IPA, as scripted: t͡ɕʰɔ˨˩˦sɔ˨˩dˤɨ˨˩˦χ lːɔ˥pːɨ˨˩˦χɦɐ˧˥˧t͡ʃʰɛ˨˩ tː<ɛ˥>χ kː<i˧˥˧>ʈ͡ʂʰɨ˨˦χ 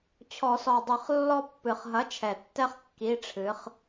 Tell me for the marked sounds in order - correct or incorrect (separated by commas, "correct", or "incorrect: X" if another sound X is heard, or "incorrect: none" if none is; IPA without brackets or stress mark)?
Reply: correct, correct